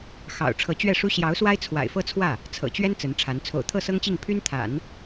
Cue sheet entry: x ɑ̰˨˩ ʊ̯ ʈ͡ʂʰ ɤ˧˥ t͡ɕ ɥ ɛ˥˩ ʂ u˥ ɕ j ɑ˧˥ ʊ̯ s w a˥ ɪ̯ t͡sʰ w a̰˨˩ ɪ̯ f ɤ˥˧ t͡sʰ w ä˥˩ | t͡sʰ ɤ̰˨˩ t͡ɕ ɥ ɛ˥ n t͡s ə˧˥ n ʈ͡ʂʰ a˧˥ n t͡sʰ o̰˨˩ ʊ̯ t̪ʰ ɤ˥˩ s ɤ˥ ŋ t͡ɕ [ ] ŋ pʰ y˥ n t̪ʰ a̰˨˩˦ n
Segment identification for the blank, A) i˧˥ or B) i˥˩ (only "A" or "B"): B